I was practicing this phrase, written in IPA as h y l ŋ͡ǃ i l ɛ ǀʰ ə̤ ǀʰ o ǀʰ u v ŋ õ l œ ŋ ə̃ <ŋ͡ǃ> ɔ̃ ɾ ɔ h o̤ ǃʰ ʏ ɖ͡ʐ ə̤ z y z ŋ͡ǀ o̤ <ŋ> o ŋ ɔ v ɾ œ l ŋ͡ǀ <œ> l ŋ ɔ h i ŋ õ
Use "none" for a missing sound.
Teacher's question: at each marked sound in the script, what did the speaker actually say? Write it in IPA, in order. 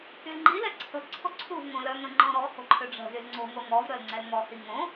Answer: ŋ͡ǃ, ŋ, ɛ

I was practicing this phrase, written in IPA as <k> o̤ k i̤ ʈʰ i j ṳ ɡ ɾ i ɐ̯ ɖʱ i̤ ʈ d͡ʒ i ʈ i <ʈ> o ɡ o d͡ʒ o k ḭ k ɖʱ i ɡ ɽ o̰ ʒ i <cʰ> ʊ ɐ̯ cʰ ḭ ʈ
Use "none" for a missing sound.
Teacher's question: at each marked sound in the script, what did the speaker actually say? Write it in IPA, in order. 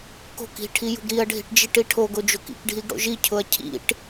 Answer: k, ʈʰ, cʰ

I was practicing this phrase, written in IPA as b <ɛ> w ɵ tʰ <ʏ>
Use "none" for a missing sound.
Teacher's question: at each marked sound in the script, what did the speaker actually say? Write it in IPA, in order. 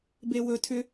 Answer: e, ʏ

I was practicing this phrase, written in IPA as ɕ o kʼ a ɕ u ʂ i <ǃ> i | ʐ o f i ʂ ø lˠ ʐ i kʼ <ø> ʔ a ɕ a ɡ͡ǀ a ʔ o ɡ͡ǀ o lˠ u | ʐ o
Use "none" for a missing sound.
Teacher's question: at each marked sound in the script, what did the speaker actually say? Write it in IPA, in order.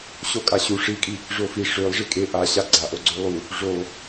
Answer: kʼ, e

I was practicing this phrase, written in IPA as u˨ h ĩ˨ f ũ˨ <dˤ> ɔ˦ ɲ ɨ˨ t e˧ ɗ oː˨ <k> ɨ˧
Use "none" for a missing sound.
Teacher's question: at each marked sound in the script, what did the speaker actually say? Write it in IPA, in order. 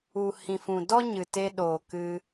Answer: d, k

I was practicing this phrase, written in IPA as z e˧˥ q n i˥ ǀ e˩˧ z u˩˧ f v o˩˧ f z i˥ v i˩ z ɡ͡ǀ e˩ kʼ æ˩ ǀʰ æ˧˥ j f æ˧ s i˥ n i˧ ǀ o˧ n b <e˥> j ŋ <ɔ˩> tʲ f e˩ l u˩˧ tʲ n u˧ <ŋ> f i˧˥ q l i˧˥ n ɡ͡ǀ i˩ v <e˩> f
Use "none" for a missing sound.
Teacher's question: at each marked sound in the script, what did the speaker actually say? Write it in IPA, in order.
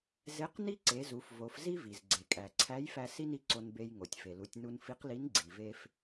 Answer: e˧, o˩, n, e˧

